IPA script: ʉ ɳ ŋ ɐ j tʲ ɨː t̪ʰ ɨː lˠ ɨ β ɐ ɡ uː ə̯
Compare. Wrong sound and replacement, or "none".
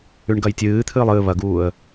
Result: ŋ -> ɡ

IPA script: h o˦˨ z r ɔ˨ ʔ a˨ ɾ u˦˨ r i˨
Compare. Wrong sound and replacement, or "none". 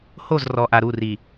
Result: none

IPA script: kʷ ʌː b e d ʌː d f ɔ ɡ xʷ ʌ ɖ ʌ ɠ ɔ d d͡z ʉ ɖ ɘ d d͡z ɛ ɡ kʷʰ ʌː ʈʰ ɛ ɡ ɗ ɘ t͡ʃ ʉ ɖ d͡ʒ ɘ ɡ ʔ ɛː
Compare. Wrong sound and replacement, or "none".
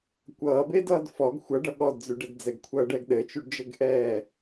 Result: ʈʰ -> ɖ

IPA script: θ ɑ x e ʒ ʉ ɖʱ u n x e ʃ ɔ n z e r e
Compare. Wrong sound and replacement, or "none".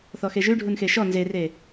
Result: ɑ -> ɔ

